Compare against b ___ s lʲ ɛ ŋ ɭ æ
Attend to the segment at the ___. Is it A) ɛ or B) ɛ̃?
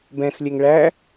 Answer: B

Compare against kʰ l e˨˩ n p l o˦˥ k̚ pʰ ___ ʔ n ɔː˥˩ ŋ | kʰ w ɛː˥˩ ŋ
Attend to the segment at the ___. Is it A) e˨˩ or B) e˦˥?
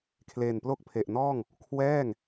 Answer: A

